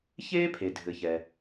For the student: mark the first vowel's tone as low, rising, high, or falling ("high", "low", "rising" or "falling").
high